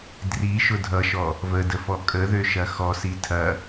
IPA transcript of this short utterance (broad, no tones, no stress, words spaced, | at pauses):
driʃʊ dʱʌʃɔ | vədəfɔ kʼəðøʃɐ xɔsi tʰɐ